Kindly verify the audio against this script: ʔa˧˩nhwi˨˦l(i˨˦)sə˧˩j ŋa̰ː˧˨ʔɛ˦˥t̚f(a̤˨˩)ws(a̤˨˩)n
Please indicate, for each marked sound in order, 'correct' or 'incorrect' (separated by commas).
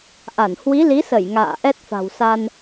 correct, correct, incorrect